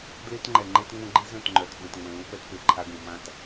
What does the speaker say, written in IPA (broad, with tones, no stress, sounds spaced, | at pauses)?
d l e˦ t ŋ͡ǃ ɛ˨ ŋ͡ǃ e˦ t ŋ͡m õ˦ ɡ͡ǃ i˦ z œ̃˦˨ t ŋ͡ǃ œ˨ t ɓ ə̃˨ t ŋ͡m ə̃˨ l ũ˦ p ɛ˦ t p e˨ ǃʰ a˦ ɡ ũ˨ m ã˦ t